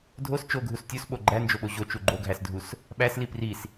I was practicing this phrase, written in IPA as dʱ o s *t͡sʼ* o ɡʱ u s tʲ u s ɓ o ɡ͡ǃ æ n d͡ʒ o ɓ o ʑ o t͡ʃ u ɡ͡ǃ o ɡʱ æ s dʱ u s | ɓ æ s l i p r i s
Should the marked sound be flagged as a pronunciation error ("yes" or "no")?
yes